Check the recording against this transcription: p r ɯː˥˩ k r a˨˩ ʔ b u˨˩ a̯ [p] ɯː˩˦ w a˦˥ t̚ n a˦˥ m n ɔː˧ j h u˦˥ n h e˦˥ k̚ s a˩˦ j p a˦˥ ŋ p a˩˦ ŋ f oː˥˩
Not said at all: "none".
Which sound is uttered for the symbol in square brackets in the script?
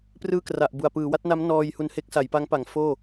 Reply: p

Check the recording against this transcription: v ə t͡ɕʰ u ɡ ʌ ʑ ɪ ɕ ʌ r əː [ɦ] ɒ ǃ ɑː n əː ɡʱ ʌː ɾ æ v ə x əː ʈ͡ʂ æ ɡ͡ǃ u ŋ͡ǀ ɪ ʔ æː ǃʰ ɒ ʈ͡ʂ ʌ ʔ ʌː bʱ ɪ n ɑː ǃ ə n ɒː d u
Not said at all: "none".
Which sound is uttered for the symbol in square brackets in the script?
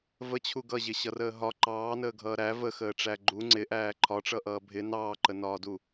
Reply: ɦ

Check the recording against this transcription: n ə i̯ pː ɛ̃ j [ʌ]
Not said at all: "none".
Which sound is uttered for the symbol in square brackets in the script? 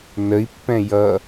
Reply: ʌ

